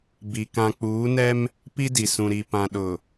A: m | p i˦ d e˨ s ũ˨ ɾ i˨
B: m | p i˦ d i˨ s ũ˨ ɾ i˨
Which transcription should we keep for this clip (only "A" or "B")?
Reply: B